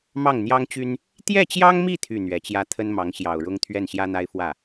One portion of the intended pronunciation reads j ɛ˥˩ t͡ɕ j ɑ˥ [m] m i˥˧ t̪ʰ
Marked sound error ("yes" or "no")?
yes